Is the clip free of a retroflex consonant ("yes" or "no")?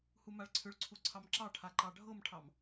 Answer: no